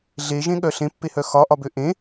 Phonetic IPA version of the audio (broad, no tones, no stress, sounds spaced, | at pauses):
ɮ e ʒ ẽ ɠ œ ɬ ẽ pː e h œ x ɒ ʔ ɒ b ø ʔ ẽ